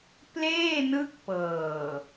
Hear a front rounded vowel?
no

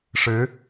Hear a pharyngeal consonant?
no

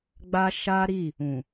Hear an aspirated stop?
no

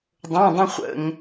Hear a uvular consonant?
yes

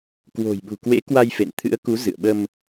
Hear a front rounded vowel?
no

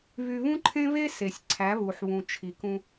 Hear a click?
yes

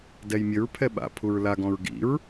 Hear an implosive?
yes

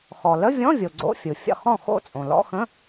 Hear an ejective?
yes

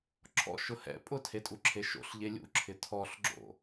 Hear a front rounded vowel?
no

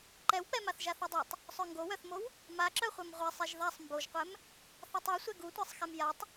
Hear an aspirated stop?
no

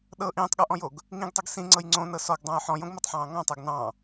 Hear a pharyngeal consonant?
yes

